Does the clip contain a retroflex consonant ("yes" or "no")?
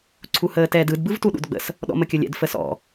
no